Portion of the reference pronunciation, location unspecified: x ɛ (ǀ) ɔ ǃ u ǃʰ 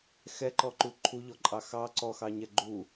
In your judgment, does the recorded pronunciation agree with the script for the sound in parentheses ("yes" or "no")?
no